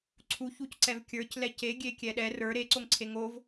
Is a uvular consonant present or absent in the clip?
absent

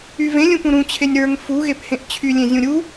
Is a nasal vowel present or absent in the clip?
present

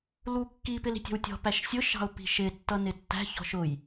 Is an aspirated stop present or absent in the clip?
absent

